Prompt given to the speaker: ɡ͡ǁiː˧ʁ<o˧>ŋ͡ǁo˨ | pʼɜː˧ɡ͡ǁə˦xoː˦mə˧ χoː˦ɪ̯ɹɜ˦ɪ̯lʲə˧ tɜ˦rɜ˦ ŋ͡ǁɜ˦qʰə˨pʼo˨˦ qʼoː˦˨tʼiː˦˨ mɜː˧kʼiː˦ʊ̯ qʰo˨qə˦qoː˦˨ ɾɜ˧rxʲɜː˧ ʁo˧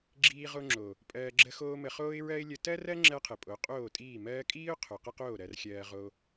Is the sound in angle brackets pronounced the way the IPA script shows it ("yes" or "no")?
yes